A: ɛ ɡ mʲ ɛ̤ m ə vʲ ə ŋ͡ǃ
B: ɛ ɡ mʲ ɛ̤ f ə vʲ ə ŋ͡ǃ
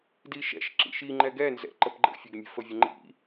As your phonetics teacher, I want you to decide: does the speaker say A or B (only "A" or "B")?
B